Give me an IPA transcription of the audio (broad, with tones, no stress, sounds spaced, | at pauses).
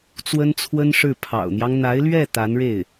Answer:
t͡s w ə˥ n t͡sʰ w ə˥ n ʂ ɻ̩˥˩ pʰ ɑ̰˨˩ ʊ̯ n̪ j ɑ˦ ŋ n̪ a˧˥ ɪ̯ l ɥ ɛ˥˩ t̪ a˧˥ n ɻ e˥˩ ɪ̯